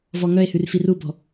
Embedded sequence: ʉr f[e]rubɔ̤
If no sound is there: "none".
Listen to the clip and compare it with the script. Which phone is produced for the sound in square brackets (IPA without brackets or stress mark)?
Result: i